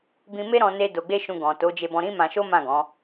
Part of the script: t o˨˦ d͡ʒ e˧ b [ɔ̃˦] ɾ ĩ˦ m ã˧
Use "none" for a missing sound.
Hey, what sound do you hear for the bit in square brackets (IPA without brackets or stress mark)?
ɔ̃˧